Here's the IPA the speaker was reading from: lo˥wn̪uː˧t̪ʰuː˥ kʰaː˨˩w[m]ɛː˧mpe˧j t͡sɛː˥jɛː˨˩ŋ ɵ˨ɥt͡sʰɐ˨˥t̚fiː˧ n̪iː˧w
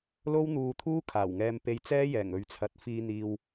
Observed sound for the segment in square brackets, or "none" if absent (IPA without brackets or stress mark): ŋ